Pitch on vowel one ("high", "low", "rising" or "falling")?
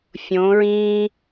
rising